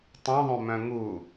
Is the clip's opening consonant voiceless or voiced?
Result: voiceless